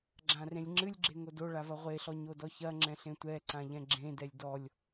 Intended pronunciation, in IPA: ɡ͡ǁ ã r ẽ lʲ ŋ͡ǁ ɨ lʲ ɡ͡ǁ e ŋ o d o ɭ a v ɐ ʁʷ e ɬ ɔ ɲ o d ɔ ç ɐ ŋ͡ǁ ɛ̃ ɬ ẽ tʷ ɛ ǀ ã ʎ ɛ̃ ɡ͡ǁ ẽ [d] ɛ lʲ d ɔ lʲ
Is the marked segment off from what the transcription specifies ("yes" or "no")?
no